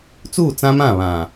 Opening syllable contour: falling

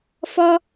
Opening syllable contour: high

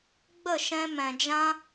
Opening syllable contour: falling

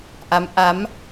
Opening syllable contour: rising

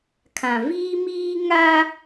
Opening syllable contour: low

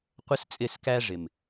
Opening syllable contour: high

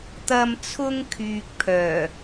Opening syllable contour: low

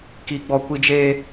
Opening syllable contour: high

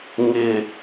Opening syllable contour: low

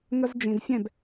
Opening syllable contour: high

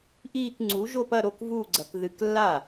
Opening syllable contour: falling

